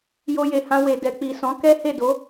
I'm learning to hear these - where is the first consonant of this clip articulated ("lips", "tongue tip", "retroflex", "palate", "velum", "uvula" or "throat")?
palate